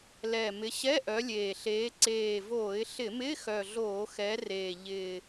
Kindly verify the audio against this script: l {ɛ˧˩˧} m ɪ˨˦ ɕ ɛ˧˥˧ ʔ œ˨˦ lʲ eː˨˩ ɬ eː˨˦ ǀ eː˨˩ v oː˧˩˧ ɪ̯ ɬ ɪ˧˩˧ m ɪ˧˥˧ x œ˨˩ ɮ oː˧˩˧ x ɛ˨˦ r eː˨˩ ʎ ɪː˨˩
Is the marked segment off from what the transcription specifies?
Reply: yes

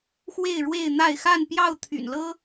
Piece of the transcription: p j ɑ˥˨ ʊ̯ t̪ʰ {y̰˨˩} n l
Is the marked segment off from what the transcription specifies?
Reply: no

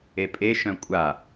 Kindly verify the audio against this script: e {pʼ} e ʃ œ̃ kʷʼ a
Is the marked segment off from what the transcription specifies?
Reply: no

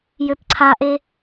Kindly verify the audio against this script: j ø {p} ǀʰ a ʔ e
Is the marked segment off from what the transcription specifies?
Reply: no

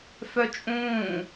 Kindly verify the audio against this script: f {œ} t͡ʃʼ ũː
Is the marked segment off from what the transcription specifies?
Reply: no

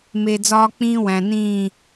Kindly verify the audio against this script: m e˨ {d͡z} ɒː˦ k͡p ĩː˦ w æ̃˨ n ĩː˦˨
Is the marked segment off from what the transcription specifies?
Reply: no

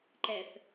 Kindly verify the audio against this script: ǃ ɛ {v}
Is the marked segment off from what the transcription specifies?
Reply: yes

